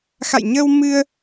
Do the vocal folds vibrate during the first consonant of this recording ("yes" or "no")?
no